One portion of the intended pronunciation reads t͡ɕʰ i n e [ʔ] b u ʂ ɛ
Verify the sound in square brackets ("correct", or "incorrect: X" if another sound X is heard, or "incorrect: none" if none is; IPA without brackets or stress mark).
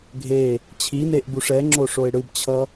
correct